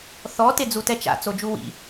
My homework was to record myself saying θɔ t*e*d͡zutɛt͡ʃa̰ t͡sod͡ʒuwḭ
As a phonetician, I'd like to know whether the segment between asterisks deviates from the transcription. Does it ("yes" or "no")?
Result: no